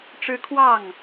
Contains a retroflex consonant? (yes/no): yes